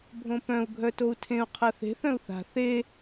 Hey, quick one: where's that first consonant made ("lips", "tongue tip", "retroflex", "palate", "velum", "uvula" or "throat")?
lips